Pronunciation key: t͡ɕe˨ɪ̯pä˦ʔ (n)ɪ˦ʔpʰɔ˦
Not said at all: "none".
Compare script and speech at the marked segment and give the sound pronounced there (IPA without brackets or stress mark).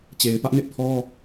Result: n